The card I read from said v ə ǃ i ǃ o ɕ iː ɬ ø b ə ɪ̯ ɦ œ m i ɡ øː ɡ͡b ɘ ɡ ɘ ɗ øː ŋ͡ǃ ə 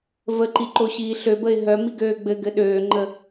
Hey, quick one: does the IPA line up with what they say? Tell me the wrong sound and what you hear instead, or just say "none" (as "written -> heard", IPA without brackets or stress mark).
none